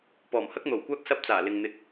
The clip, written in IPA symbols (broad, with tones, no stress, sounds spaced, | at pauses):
p ɔː˨˩ m h ɐ˧ k̚ n̪ o˨˩ w kʷ aː˧ k̚ s ɐ˧ p̚ t͡s aː˨˩ l ɪ˨ ŋ n̪ ɪ˧ k̚